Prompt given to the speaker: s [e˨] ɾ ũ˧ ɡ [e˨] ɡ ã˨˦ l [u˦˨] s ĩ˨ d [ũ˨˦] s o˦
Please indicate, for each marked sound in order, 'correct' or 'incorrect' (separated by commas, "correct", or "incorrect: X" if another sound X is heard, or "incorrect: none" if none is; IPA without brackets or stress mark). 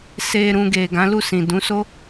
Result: incorrect: e˧, correct, correct, correct